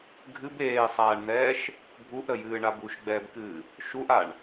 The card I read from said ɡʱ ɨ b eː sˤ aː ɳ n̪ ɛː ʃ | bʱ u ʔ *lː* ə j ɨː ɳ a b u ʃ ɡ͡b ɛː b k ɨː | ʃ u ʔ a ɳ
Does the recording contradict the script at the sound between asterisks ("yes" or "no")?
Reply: yes